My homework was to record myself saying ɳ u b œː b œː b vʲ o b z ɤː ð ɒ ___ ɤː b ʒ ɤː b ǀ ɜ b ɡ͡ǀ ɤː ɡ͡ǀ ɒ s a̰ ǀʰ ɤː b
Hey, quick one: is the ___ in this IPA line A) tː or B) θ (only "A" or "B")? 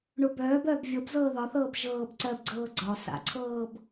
B